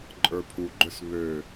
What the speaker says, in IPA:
ǃʼə˞pʰuɡ͡ǃøs βø

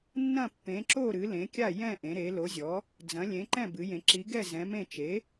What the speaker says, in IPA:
nːɐ̃˥˩pːẽ˩˥ǁo˥˩ ɾɨ˩˥lẽ˩˥kʲa˥˩ jɛ̃˥˩ ʔẽ˩˥ɾe˩˥ lo˩˥zʲɔ˩˥ | d͡zɐ̃˩˥lʲẽ˩˥ǃɛ̃˥˩ bɨ˩˥jẽ˩˥ ǁi˩˥ɡɛ˥˩ zɛ̃˩˥mẽ˥˩ t͡ʃe˩˥

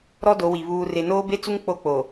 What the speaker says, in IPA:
ɾɔ˦do˨˦ wi˨ βuː˨re˨ noː˦be˦t͡su˦ŋ k͡po˦k͡po˨

